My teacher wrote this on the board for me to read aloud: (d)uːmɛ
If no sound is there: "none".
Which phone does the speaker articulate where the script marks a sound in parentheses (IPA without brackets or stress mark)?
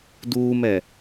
d